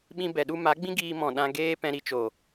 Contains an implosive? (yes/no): yes